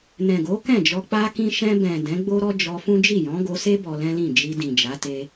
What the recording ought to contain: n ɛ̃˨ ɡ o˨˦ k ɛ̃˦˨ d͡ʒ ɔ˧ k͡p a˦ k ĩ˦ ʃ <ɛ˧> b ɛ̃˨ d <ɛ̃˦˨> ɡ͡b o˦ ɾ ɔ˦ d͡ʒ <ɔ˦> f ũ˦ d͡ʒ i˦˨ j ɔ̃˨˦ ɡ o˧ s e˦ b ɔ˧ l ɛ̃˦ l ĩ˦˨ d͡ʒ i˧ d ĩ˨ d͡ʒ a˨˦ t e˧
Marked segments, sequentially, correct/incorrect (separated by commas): incorrect, incorrect, incorrect